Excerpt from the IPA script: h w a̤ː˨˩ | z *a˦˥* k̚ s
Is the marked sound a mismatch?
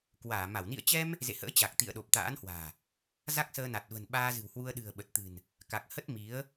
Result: no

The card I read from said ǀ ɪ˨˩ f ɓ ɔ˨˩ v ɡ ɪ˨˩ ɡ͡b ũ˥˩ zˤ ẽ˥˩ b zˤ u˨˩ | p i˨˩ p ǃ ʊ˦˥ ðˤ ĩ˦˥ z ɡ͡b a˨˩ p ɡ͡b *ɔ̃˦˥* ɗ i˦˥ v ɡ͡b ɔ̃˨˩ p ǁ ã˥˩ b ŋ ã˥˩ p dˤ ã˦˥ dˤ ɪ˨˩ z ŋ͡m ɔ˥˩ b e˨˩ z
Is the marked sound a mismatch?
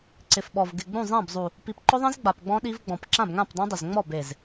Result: no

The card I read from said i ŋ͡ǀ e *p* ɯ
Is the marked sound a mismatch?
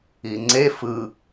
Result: yes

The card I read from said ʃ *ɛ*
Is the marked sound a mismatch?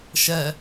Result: no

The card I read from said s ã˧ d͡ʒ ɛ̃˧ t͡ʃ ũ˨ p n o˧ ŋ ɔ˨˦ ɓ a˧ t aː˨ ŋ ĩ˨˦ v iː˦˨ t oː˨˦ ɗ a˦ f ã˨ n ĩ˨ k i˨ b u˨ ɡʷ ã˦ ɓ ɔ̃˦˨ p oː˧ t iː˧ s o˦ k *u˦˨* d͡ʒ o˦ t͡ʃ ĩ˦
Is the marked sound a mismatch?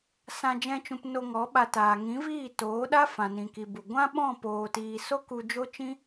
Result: yes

